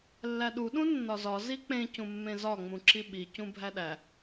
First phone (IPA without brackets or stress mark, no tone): lː